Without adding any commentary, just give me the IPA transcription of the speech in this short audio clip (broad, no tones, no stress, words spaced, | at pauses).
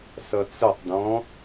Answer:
sʌt͡sətˤdɔ̃